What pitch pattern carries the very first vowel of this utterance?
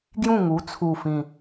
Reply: falling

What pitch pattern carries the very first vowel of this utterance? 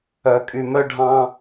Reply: low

